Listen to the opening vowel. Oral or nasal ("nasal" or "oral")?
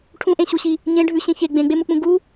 nasal